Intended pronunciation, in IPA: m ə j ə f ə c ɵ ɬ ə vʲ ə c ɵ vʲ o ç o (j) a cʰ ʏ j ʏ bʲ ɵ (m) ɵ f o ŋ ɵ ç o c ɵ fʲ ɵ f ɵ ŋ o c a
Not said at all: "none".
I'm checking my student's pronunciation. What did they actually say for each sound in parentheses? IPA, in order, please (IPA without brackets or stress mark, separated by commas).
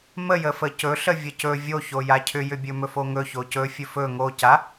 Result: j, m